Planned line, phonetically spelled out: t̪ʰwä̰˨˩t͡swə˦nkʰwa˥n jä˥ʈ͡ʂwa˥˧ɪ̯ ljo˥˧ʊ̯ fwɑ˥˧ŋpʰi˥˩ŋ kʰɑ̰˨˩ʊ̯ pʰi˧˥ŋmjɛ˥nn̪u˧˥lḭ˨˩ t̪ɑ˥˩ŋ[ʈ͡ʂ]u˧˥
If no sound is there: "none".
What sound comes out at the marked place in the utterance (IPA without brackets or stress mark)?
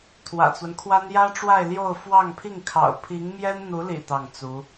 t͡s